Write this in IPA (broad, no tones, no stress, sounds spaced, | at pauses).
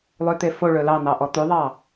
lˠ ø t̪ e f o ɭ ɵ l ɑ n̪ ɑ ʔ ɔ t̪ ʉ ðˤ ɑ